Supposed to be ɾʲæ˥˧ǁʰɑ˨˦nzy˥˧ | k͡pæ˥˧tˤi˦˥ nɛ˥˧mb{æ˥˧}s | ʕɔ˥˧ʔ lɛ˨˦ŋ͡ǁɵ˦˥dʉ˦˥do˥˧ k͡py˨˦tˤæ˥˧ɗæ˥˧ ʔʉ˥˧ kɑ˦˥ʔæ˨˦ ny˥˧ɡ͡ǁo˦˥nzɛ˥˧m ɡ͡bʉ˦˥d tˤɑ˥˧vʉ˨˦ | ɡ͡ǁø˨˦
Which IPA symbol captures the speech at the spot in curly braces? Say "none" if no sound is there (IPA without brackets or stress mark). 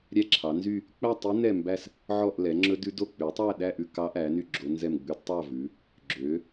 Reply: æ˥˧